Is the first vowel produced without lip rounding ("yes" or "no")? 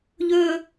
no